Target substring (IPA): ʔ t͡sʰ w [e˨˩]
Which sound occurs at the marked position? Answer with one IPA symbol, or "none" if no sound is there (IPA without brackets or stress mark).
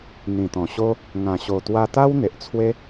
e˦